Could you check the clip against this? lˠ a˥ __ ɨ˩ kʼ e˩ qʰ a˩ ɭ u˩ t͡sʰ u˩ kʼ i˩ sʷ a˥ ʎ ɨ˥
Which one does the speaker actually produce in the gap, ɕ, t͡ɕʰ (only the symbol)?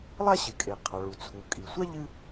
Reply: ɕ